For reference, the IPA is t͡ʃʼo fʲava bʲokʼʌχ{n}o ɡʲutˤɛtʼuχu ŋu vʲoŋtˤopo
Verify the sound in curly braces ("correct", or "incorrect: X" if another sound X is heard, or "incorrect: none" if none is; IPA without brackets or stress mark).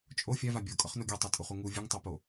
correct